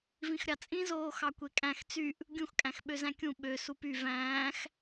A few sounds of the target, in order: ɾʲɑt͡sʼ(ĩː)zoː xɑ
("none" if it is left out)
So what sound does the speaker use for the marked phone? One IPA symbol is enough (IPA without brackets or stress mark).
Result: ĩ